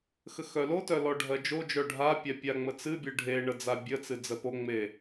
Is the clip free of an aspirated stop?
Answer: yes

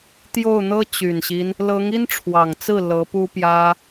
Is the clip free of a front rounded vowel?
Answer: no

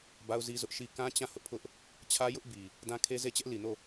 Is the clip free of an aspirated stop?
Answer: no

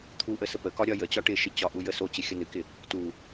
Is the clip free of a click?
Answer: yes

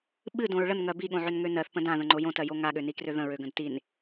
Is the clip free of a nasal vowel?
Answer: no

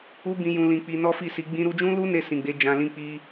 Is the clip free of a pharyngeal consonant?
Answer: yes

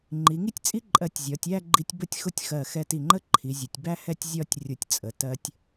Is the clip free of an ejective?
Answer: no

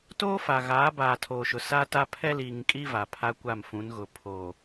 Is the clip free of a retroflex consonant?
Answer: yes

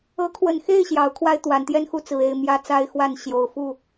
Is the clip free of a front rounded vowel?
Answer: yes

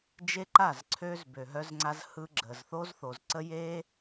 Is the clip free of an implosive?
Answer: yes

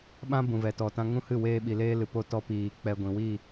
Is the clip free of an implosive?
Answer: no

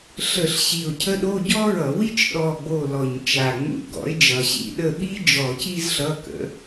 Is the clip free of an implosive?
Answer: no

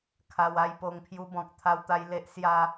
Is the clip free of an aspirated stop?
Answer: no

